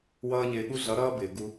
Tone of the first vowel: high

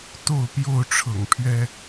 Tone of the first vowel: falling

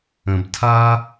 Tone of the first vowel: low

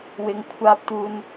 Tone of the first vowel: low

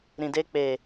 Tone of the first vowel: low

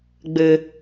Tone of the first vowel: low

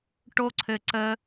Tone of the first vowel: high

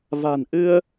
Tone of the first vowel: low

